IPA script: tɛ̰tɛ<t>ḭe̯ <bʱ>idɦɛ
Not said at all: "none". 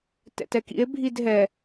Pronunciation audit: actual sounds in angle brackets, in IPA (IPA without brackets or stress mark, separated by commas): k, bʱ